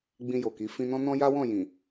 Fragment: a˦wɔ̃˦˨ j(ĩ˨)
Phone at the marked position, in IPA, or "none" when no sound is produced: ĩ˨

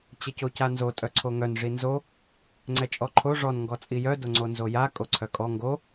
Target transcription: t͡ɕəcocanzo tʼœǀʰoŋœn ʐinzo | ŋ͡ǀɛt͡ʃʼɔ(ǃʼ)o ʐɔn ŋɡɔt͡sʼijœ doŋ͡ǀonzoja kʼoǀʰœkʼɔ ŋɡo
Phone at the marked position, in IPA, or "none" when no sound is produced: ǃʰ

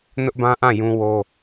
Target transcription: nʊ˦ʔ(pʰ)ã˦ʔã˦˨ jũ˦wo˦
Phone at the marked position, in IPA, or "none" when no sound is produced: b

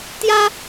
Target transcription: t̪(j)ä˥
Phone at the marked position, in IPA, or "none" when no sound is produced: j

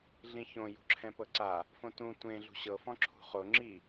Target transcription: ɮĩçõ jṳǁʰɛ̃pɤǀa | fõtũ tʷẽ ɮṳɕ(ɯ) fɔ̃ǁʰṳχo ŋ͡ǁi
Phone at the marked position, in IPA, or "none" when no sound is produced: ɤ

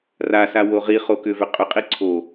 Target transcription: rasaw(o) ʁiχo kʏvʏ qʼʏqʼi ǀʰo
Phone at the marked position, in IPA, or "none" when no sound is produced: o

